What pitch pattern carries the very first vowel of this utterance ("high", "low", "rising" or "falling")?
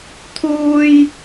high